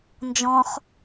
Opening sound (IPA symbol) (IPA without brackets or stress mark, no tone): n